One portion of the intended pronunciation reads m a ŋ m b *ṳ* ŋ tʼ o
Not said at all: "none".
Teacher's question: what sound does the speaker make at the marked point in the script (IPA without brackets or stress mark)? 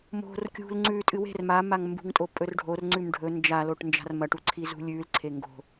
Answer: ṳ